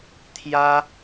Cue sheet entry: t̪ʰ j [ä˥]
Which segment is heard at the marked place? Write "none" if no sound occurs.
ä˥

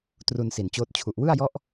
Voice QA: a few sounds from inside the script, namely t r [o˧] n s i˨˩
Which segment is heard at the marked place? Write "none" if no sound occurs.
u˧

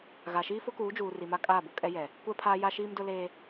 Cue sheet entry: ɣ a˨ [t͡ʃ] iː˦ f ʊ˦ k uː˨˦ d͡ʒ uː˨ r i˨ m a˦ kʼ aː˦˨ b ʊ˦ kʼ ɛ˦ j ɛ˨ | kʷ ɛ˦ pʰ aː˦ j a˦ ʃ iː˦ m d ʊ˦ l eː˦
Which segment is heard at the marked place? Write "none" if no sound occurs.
ʃ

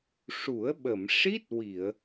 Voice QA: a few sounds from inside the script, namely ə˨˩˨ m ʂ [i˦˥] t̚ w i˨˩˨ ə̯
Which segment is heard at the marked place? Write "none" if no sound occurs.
i˦˥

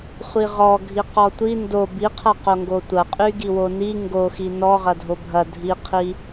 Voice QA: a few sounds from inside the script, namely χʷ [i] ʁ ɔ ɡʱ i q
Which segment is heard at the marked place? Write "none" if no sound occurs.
i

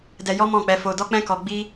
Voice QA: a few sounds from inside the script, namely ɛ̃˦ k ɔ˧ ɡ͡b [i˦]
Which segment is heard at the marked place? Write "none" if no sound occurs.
i˦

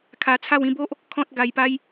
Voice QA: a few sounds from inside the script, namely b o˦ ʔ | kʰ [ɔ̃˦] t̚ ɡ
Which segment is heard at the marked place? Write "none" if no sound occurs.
ɔ̃˦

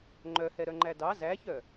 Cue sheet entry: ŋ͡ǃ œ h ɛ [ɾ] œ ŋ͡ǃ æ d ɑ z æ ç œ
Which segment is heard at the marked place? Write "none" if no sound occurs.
ɾ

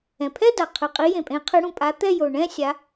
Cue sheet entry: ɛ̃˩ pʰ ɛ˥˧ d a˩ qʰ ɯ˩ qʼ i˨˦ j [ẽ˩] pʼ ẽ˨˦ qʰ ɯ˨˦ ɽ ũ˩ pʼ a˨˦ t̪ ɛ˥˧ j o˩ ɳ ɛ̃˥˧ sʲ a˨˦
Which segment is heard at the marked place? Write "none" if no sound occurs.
ẽ˩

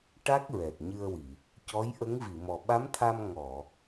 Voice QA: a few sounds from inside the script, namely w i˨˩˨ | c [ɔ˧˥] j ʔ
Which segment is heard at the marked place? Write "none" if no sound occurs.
ɔ˧˥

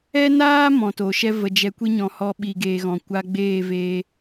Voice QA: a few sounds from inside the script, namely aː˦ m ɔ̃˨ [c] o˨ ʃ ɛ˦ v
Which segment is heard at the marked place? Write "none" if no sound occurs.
t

